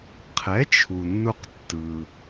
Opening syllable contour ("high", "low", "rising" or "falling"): rising